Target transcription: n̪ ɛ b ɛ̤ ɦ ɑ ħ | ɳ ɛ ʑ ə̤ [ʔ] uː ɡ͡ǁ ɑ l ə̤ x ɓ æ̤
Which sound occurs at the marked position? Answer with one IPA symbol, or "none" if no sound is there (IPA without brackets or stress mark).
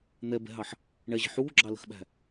ħ